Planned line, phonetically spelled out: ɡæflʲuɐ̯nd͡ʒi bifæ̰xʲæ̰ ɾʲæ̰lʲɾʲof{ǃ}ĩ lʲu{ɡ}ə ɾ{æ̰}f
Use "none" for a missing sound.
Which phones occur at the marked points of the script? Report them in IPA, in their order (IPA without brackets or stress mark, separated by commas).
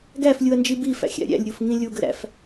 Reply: ŋ, ɡ, æ̰